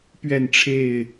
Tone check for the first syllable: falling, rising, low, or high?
falling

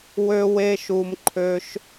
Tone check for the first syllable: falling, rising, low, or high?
high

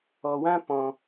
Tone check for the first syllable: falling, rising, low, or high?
low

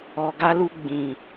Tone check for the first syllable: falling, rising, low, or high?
low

